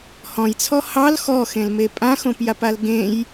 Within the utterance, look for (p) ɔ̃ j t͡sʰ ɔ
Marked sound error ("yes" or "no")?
yes